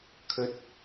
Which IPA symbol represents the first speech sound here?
kʰ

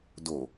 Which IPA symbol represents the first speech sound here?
d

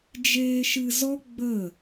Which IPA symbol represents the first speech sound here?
d͡ʒ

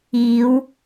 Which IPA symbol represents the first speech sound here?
iː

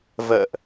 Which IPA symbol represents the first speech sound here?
v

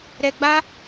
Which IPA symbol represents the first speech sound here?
ɾ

